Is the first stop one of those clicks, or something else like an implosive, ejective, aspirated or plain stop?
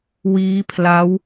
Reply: aspirated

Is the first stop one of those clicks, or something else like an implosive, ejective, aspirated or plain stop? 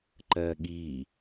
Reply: click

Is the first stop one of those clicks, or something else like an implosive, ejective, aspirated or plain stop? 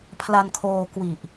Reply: aspirated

